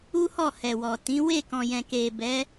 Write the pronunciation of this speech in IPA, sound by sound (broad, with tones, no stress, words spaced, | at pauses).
u˦hɔ˦˨ hɛ˨wɔ˨ tĩ˨˦ we˦˨kɔ̃˨jɛ̃˨ke˨ bɛ˨˦